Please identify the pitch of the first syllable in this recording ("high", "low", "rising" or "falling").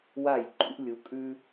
falling